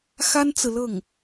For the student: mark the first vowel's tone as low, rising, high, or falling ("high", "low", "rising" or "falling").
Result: high